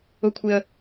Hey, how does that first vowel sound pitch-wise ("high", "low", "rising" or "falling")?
high